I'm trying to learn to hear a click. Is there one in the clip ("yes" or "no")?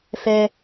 no